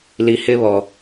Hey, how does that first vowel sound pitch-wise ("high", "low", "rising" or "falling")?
low